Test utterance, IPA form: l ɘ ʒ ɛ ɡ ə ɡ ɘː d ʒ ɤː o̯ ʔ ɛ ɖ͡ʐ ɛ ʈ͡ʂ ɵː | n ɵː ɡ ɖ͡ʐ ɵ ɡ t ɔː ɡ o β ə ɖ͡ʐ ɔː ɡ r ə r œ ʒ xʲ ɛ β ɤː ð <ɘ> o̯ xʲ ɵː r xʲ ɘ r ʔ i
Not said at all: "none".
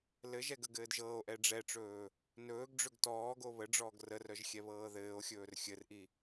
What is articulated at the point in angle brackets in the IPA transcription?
ɘː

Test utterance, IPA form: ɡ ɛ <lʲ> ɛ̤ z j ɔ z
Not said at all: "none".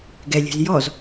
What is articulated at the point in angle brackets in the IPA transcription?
lʲ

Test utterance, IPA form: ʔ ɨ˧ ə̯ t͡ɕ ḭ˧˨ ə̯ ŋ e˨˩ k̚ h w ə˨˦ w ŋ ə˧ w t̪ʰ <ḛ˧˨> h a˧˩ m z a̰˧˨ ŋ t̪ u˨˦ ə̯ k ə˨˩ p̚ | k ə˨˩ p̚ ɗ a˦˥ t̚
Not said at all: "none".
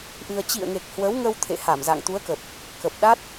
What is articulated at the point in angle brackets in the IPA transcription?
ḛ˧˨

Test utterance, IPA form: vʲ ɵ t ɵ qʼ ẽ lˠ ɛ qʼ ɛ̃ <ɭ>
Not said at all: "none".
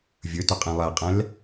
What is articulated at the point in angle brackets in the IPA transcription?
l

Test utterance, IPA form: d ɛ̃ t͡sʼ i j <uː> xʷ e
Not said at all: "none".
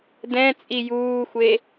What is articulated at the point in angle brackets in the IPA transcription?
uː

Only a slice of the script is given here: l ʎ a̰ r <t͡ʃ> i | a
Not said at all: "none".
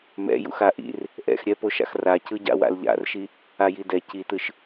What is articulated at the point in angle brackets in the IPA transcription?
ʃ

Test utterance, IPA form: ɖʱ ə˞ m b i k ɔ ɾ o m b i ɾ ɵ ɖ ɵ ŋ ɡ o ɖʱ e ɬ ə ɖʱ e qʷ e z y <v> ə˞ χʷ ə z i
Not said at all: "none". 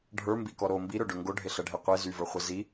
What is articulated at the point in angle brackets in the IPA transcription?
v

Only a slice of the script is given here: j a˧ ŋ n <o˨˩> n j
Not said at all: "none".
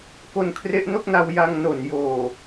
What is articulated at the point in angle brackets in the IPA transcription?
o˨˩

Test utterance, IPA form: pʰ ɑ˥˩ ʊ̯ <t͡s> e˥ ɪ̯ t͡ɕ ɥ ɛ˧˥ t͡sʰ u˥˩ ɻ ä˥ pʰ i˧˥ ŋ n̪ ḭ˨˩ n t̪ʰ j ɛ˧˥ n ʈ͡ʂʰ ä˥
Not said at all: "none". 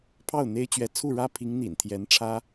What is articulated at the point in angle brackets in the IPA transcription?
n̪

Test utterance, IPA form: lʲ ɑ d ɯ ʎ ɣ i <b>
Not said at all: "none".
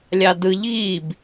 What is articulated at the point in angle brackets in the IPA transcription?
b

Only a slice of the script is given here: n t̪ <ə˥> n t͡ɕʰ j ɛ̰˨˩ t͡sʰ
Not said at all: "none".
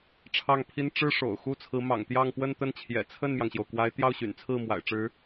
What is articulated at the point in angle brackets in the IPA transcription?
ə˥˩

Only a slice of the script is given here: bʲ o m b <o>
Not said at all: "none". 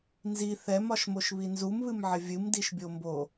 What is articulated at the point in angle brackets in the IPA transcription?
o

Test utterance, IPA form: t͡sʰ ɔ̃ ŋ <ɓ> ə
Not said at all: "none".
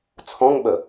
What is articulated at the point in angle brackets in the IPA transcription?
ɓ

